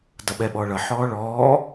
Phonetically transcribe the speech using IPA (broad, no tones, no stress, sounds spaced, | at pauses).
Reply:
d ʌ ɓ ɛ ɓ ɔː ɭ ʌ ħ ɔː ɭ ɔː